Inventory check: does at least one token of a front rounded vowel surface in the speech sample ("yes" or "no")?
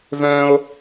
yes